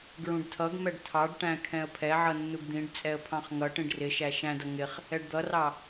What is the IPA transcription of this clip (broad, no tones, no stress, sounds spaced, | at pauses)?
ɡ ɹ ũ ɖ tʰ ʌ ɡ m ɛ ɖ tʰ ɑ ɖ ʈ æ̃ kʰ ɛ̃ ə̯ pʰ ɛ ʕ ʌ nː u ɡ d̪ ĩ ɖ t͡sʼ ɛ ə̯ pʰ ɑ̃ χ ŋ ʌ ʈ ĩ ɖ r ɪ ʃ æ ʃ æ̃ d ʌ ŋ ɪ χ | ɛ ɖ d̪ ʌ r ɑ